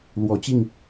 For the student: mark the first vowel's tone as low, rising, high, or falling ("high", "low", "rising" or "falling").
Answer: low